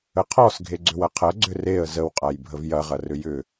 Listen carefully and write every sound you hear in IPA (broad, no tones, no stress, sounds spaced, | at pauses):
ə qʰ ɔ s ɡʱ e ɡ͡ǀ ʏ w ɐ qʰ ɐ ɡ͡ǀ ʏ r e ə̯ z ə w qʼ a j bʱ ə v j ɐ ʁ ɐ r ʏ j ʏ